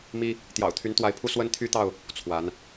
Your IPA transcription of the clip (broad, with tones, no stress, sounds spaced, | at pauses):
m i˦ | t̪ j ɑ̰˨˩ ʊ̯ t̪ʰ y˨˦ n t̪ w a˨˦ ɪ̯ pʰ u˧ s w ə˦ n t̪ʰ y˦ t̪ ɑ˥˨ ʊ̯ | t͡sʰ w a˨˦ n